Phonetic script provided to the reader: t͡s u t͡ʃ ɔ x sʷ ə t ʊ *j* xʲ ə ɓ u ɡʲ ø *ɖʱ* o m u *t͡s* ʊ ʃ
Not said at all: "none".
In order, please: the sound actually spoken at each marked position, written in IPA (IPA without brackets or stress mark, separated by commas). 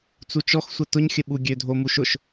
ɲ, dʱ, ʃ